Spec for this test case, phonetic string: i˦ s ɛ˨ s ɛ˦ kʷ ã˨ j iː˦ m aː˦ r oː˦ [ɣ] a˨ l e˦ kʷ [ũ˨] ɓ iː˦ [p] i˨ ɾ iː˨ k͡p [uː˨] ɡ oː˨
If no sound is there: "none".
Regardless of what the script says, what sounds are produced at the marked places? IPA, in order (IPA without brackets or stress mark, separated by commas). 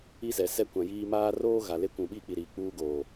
ɣ, ũ˨, k͡p, uː˦